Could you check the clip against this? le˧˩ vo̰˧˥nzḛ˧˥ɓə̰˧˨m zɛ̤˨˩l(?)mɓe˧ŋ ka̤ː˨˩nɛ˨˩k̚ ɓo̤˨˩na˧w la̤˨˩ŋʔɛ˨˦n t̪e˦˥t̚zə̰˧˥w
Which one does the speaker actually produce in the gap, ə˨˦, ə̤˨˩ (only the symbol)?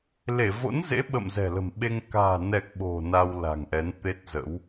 ə̤˨˩